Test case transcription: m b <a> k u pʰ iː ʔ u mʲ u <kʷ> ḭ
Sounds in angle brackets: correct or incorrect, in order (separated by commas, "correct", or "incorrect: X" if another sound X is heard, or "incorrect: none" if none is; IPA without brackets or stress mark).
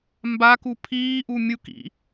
correct, incorrect: k